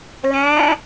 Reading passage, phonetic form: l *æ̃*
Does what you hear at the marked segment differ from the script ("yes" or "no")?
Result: no